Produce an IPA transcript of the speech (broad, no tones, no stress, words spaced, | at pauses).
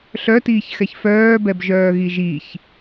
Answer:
ɬœtiːçxɛç fœːbɛbʒœːɣi ʒiç